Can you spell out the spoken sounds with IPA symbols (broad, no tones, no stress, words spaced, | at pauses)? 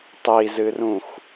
tˤizɨrũx